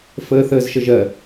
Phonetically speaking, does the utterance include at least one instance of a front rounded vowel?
no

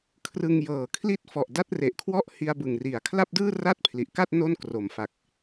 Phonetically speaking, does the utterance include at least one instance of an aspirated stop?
yes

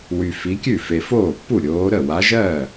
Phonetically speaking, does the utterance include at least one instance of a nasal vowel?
no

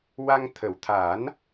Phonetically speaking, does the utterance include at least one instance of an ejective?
no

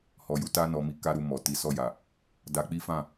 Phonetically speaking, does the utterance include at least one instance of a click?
no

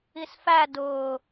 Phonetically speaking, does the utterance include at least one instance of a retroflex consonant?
no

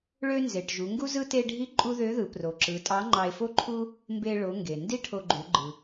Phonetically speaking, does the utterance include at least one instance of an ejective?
yes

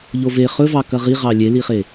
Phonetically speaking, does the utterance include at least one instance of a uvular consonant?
yes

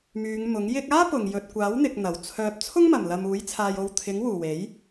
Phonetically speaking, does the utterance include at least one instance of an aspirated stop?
yes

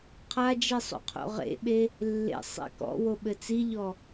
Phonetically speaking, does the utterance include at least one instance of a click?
no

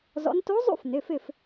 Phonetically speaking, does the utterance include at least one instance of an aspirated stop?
no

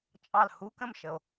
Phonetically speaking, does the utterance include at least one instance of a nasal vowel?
yes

